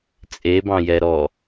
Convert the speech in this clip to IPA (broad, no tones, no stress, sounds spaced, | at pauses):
t͡sʼ e b ɑ̃ j ɛ ɾ ɔ